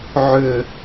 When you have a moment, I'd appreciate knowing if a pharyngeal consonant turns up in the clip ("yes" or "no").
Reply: yes